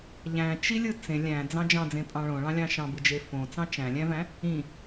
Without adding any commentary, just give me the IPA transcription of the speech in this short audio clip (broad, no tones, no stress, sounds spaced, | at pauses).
ʎ æ̃ t͡ʃ i lʲ ɯ t͡s ẽ lʲ æ̃ d͡z ɑ̃ d͡ʒ ɑ̃ d͡z ẽ pʼ ɑ̃ ɭ õ ɭ ɑ̃ lʲ ɑ̃ ʃ ɑ̃ b ɯ d͡ʒ e f õ t͡s ɑ̃ t͡ʃ æ̃ lʲ æ̃ v æ̃ | ĩ